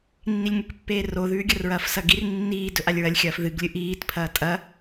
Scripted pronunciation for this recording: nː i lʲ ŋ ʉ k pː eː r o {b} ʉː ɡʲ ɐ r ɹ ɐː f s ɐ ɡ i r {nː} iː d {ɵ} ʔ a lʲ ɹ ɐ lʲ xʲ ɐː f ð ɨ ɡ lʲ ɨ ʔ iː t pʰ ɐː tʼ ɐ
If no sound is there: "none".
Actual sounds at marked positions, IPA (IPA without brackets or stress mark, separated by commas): ð, nː, ɵ